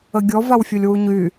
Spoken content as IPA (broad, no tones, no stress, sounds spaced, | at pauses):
ə ɡʲ ɔ v a w fʲ o lʲ w u ɲ y